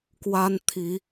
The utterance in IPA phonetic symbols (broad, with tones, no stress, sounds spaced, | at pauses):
k w a˦ n t̪ʰ i˨˦